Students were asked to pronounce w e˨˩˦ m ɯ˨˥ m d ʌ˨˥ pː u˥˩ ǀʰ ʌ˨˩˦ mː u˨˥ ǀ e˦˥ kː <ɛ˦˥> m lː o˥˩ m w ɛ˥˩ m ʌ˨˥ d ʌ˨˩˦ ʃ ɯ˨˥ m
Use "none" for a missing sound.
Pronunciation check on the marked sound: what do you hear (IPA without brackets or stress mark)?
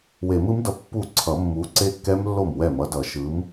ɛ˦˥